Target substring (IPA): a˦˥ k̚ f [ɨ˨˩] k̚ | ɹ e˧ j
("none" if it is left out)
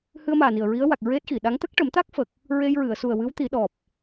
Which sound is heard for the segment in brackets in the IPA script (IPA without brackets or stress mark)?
ə˨˩